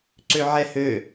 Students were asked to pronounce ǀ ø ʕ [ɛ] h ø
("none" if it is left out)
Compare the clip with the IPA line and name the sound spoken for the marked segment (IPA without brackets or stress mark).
ɛ